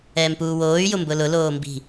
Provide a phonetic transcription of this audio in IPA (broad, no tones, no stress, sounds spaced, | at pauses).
ɛː m p uː w oː y̯ j ʊ m b ʊ l ʊ l oː m b i̤